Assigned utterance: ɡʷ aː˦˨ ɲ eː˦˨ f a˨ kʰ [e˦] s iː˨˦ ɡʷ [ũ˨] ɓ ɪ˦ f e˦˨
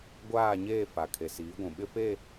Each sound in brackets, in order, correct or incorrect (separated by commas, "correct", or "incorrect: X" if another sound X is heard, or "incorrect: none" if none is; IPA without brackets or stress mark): incorrect: e˨, correct